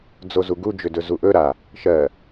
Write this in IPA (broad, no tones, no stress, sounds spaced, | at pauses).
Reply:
d͡z o z u ɡ u d͡ʒ ʏ d ɵ z u ʔ ɵ ɾ a | ʃ ɜ